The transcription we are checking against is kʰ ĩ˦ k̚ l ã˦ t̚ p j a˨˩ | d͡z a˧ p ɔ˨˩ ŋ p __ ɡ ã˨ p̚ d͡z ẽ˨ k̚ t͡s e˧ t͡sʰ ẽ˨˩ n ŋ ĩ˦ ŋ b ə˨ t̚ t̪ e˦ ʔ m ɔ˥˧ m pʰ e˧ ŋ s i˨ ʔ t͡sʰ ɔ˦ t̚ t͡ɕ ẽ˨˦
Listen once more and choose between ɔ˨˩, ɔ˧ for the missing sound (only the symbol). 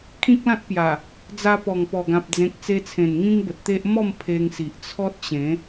ɔ˨˩